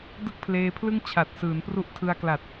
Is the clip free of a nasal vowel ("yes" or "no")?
yes